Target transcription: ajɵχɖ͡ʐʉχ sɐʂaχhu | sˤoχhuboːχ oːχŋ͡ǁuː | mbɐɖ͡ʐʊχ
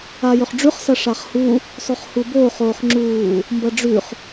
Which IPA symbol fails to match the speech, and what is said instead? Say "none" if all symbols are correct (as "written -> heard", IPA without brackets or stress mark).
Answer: ʊ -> ʉ